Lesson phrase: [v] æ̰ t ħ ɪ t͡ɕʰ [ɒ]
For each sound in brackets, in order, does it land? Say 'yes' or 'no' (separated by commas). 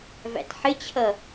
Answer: yes, no